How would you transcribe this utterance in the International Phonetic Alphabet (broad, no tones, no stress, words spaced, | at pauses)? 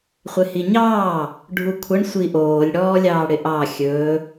χʷɪhiɲɑː | ɖʱukʷʰəɳ sʷiʔoːlʲ ɽɔːlʲɑːɽɪʔɑ xʲɵː